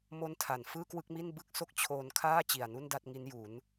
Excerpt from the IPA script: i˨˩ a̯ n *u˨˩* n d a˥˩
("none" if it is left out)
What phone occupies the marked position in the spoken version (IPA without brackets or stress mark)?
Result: u˥˩